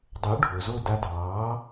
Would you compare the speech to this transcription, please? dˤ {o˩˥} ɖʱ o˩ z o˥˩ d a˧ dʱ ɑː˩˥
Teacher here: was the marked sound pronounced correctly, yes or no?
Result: yes